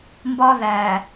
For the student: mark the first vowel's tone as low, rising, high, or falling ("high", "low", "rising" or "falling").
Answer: high